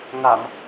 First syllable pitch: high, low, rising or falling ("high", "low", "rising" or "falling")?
low